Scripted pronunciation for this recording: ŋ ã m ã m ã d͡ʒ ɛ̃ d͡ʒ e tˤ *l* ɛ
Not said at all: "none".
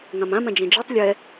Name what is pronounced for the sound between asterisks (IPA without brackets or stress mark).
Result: lʲ